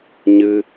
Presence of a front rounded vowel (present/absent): absent